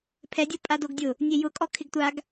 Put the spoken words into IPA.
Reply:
pʰ ɛ dʲ o pʼ a d o ɡ dʲ ʊ | nʲ e j ʊ kʼ ɔ kʰ ɪ ɡ tʷ a ɡ

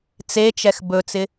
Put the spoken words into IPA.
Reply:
t͡s e t͡ʃ ɛ x b ɵ t͡s ɪ

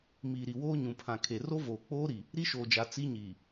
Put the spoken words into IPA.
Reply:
m iː˨ ɾ i˨ w oː˦ ɲ ũ˨ pʰ ã˨ kʰ e˨ r o˦ v oː˨ k͡p oː˦ ɾ i˨ | ɾ i˦ ʃ oː˨ d͡ʒ a˨ t͡s i˦ ɲ iː˨

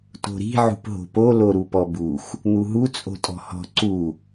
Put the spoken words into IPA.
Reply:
t o̤ ɾ i̤ ʕ ṳ p ɦ o̤ p o l o ɾ u p ɔ b u x | n̪ u ɦ u t͡sʼ o̤ tʼ ɔ̤ h ɔ̤ ǀ u

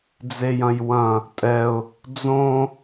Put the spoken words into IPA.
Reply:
d͡z e j ɐ̃ j w ɐ̃ | tʼ ɛ ʊ̯ | d͡z õ

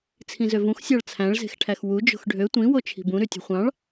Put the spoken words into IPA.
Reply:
t͡sʰ ĩ z ø v ũ x sʲ ɑ ɭ t͡sʰ æ̃ ɭ z e̤ x ʈʰ æ x w u d͡ʒ o̤ x ɖʱ ø tʷ ĩ w o t͡ʃʰ i̤ b ũ ɾ y tʲ ṳ χʷ ɑ̃ ɭ

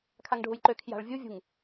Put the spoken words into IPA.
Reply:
kʰ a ŋ ɖʱ u j ǃ ø kʰ j a̤ ɭ vʲ u vʲ ṳ ŋ

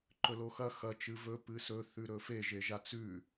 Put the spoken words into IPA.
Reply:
ǃ ɵ l o x ɐ x ɐ t͡ʃ ɨ v ɵ p ɨ s ɵ θ ʉ ɾ ɵ f e ʒ e ʒ a t͡s ʉ

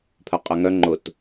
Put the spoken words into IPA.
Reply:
pʰ œ qʼ œ ŋ œ ŋ͡ǃ ʊ t

